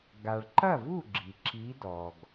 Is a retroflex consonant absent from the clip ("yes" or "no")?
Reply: no